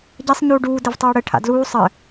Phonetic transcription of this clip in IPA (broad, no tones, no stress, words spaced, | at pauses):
ɟɛsˤ ɲuːɖuː dɘvtˤuːɽɘ ʈʰa̰dluː sˤɘ